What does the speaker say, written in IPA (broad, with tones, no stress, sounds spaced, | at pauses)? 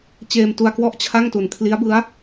t͡ɕ eː˧ m t u˧ a̯ k w ɔ˦˥ ʔ t͡ɕʰ a˥˩ ŋ t u˨˩ n kʰ l i˦˥ a̯ b ɯ˦˥ a̯